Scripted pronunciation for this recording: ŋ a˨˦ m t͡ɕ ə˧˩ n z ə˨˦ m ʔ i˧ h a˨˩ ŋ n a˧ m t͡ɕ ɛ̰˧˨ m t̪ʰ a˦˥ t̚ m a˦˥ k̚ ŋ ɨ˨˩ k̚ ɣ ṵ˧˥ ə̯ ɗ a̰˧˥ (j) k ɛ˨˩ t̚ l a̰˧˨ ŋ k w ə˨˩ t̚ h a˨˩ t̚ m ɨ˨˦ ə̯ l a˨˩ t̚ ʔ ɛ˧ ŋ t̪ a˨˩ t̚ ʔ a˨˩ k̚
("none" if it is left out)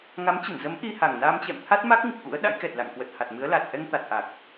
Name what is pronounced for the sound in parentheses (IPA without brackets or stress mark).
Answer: j